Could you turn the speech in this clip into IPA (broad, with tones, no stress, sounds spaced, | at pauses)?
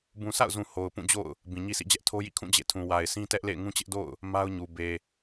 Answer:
b ũ˨ sʰ a̰˦˨ ʊ̯ z ũ˨ h o˨ ʊ̯ p ũ˦˨ d͡ʑ o̰˦˨ ʊ̯ | b ĩ˨ ɲ i˦ sʰ ḭ˦˨ d͡ʑ ɛ˦ ʔ tʰ o˦ j ḭ˦˨ kʰ ũ˦˨ d͡ʑ ḛ˦˨ tʰ ũ˨ w a˨ ɪ̯ sʰ ĩ˦ t ɛ˦ ʔ l ḛ˦˨ ɪ̯ ŋ ũ˦ t͡ɕ ɪ˦ ʔ d o̰˦˨ ʊ̯ | m a˦ ʊ̯ ɲ u˨ b e˨